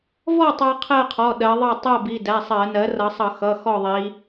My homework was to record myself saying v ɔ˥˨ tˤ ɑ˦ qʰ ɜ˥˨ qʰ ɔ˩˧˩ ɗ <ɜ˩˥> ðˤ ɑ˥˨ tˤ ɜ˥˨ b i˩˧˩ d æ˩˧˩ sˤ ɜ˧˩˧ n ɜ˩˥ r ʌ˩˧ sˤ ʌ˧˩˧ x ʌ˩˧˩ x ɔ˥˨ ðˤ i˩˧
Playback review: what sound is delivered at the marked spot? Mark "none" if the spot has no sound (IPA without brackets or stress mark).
ɜ˩˧